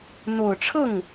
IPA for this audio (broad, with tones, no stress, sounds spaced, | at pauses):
n̪ o˨˩ ʊ̯ ʈ͡ʂʰ ɤ˥˩ ŋ